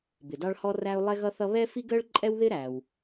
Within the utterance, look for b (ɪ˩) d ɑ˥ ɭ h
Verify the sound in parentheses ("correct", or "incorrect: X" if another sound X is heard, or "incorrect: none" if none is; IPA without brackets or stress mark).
correct